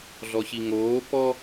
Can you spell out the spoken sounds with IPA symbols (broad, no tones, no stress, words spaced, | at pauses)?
ɮɔçiŋoː pɔ